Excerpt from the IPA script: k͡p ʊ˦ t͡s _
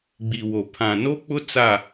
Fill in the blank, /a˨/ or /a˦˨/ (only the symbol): a˦˨